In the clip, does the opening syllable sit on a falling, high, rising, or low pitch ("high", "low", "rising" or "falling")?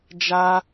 high